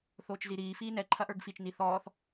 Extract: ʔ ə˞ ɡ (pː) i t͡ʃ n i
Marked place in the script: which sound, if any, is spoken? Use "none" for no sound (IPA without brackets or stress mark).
f